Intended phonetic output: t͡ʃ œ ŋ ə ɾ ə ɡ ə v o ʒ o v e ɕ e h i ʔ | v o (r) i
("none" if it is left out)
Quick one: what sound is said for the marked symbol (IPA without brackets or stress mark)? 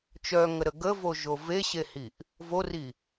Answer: r